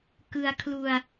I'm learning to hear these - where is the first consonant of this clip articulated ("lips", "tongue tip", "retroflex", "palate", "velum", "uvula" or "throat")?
velum